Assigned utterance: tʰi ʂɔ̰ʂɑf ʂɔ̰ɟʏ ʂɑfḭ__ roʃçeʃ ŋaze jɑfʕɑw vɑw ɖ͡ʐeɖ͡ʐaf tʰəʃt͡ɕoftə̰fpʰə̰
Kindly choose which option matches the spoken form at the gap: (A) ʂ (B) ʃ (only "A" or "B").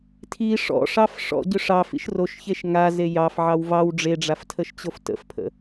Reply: B